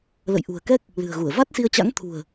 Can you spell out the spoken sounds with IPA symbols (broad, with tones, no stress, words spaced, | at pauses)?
lə̰˧˨jʔṳ˨˩ə̯kɛ˦˥k̚ | lɨ̤˨˩ə̯ɣu˧˩ə̯ va˦˥t̚si˧ə̯t͡ɕa̰˧˥ŋ t̪ʰṳ˨˩ə̯